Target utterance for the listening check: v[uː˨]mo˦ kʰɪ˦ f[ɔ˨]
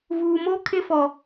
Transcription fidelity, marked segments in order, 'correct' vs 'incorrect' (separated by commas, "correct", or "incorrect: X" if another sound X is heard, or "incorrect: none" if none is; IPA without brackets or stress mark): correct, correct